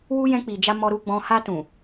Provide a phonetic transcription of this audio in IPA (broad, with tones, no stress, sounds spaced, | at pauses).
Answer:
w u˦ j ɛ̃˧ k͡p i˨ d͡ʒ a˧ m ɔ˨ ɾ u˨ ɡ͡b ɔ̃˨ h a˧ t ũ˨